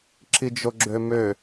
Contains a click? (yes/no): yes